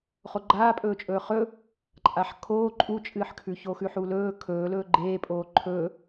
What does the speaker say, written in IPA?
χoɡ͡ǃaːpʼɵːt͡ʃʼɵː χɵ | ǃʼaħkʰoː ǃʼut͡ʃʼɨːħkʰʉ çoxʉħulɵː kʰɵː lɵːɡ͡ǃeːpʼoː ǃʰɵː

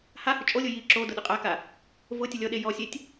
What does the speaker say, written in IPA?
hahʊ t͡ʃʼolʲʊ ji ǁo dʊɗʊqʼaka | vʊ tʲʊlʲɔɗe jɔsʲetʲ

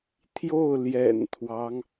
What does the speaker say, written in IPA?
t̪ʰjo˥˩ʊ̯ ljɛ̰˨˩nt̪ʰwɑ˦ŋ

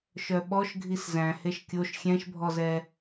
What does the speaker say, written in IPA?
ʃœɓɔʃ ɡʱiszæ̃heʃ kʲoʃ xʲɛ̃ʃbʱɔzɛ

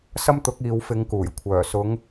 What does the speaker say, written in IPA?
sɐ˥mt̪ʊ˨˥k̚iː˨˧w fɪ˨˧ŋkuː˨˩j kʷʰœː˨˩ sʊ˨˧ŋ

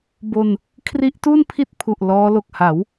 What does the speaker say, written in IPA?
bo˧n | kʰri˦˥ʔtu˥˩npʰi˥˩t̚pʰu˨˩ʔ lɔː˦˥lo˨˩k̚ ha˩˦w

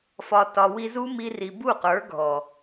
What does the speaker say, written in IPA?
fɒ˨tɒ˨ wi˧zu˦mi˧ ri˨bu˦˨ qə˞˨˦ɡʱɔ˨

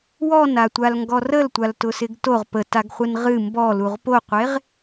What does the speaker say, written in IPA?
wɔnatʷalŋɡɔ rəltʷaltʊsɪɡ toʁ pətaɡχʷɪn ʁɨ mbɔluʁ poqʷeʁ

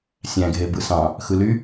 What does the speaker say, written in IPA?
sʲæ̃ ɡʱebɯsɑ̃ | xɯly

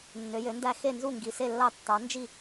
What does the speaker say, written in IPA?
nːø˩˥jø˩˥ndæ˥˩ xe˥˩nzu˥˩ ŋɡi˩˥ se˥˩lːɑ˥˩ tːɑ˩˥nd͡ʒi˥˩

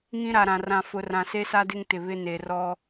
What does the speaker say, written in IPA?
ŋĩ˦ɾa˨ɾã˨ rã˨fʊ˨ rã˨se˦sa˦dɪ˦ŋ tɪ˨βɪ˦ ne˨rɔ˦

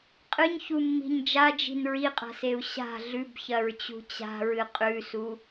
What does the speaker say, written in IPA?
qʼɨɲçumːi̤ɲ d͡ʒad͡ʒi̤n ɹiqʼa̤seu̯ ɕa̤ ɮʉbçɐɹt͡ɕṳ t͡ɕa̤ɹɨ qʼʉsu

